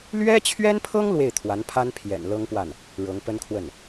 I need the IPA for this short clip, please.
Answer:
lɥɛ˥t͡ɕʰɥɛ˥npʰɤ˥ŋ lwe˥˩ɪ̯t̪ʰwa˧˥npʰa˥n pʰjɛ̰˨˩nlɤ˥ŋpwa˥˩n | ɻɤ˧˥ŋpə˥nkʰwə˥˩n

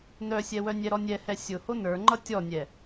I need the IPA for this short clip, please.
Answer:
nœsʲɛwœ nʲɛɾɔnʲɛhɛ sʲʊho nə˞ŋ͡ǃʌ tʲɔnʲɛ

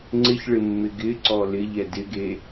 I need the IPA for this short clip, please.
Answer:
ŋ͡ǀɪçɭɪ mːɪɡɪǀɔ lɪʎɛ dɪɡe

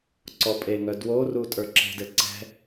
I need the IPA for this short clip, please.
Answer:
ǀɔpʼeŋœ dworu tʼə˞ǁe̤dɘ ǀɛ̤

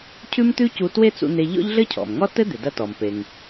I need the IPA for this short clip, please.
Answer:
cʰʉ˥mt̪ʉ˥cu˧ twe˥t͡sṵ˧n̪e˧ ʎɔ̰˥ʎɮɘ˥cʰɔ̰˩mŋɔ˥ tɘ˥d̪ɪ˩ dɐ˧tɔ˩mpe˩ŋ

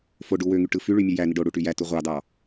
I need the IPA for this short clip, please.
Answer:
foɖu wøŋy ʈɯfyɭy mʲɯjæni ɖoɽu ʈyjætu ʁʷɑdɑ

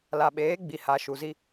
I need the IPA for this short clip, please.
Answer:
la˨ɓeː˨˦ ɡ͡bi˨ha˨ ʃu˨zi˦

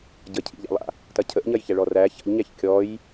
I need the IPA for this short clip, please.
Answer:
ɟəcʰḭʎa̰lˠa̰ | tɐcʰəʔɲɐjçæ ɭɔræ ça̰ʎɲæç kʲɔj

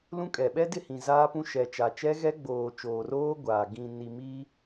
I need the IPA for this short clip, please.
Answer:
lũ˦kʼɛ˨ ɓɛ˦dɪ˦˨hĩ˨ zaː˦pũ˦ ʃɛ˨t͡ʃa˨t͡ʃɛ˦ ɣɛ˦ɡ͡boː˨ t͡ʃoː˨roː˦ ɡʷaː˨ ɡĩ˨ni˨mi˦

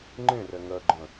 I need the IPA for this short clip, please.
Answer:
ŋ͡ǃẽrɛ ŋɜɡ͡ǃə̃

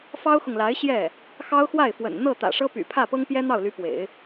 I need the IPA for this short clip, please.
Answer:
fɑ˥ʊ̯xʊ˨ŋla˧˥ɪ̯ɕjɛ˥˩ | xɑ˥ʊ̯xwa˥˩ɪ̯fwə̰˨˩n n̪ɤ˥˩t̪ä̰˨˩ʂɤ˥py̰˨˩ pʰä˥˩pɤ˥ŋ pjɛ˥n̪ɑ˥˩ʊ̯ly˧˥pwḛ˨˩˦ɪ̯

